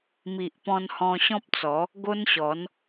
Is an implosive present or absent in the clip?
absent